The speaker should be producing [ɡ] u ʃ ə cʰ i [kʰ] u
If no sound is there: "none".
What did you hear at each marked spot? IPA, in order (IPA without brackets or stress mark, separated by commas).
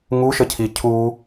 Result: ŋ, cʰ